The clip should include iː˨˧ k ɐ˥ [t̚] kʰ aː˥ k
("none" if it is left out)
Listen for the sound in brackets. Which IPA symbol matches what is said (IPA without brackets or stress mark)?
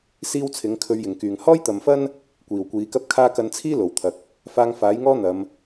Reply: p̚